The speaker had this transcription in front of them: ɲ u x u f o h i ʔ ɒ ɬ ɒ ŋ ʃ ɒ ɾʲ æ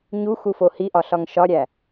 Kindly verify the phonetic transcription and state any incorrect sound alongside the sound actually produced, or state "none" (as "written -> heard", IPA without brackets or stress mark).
none